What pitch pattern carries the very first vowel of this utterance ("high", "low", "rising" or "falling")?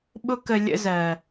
high